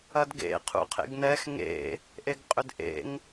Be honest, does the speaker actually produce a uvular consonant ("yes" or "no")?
yes